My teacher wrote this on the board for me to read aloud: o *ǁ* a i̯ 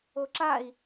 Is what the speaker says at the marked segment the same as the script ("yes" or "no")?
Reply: yes